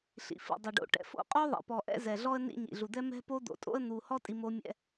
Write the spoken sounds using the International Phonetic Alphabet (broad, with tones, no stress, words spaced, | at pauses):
ɬḭ˨fḭ˨dˤɛ˨ɖo̰˨ ʈɛ̰˨fo̰˦ qʼo˦ðˤɛ̰˨ pɔ˨ʔɛ̰˦zɛ˨ ɮɔ˦ə̯nḭ˦ ɲḭ˨ɮu˨d̪ɛ˦ mɛ̤˦po˦d̪o̰˨tʼo̰˦ə̯ n̪u˨ hɔ˦tʼi˨ mo˦mʲɛ̰˦